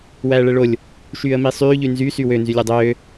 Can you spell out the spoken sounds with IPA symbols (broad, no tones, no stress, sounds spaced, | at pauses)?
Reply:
w æː ɭ ɛ ɭ o lʲ | ʃ yː ə̯ m i sˤ yː ʎ y n z y s y w ø n z y lʲ ø dˤ øː